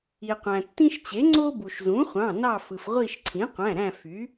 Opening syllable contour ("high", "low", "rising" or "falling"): low